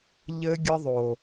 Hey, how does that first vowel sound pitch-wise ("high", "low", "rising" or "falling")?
high